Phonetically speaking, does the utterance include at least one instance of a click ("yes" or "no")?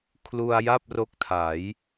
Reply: no